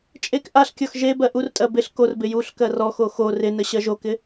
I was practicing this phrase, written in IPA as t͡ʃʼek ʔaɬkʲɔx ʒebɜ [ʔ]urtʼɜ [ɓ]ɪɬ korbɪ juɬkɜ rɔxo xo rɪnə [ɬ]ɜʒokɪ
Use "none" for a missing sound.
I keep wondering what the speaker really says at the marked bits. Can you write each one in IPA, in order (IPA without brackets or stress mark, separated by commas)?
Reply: ʔ, b, ɕ